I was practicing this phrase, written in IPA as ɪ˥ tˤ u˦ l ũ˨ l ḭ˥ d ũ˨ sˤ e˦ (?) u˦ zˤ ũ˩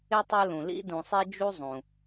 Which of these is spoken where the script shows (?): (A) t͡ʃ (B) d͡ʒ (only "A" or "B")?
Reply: B